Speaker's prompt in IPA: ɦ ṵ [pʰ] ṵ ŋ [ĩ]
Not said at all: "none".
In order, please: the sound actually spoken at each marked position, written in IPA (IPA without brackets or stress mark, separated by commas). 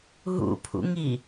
pʰ, i